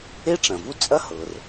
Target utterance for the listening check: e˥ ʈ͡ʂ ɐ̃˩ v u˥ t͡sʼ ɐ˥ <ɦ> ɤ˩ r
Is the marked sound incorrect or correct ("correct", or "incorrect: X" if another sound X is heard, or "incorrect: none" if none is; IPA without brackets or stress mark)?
incorrect: h